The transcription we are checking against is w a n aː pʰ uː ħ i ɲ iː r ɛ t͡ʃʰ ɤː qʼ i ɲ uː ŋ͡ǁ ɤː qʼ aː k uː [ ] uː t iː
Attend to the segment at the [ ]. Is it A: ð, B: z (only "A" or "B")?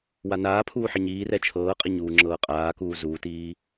B